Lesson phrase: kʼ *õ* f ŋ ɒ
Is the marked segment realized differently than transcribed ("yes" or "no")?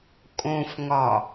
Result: no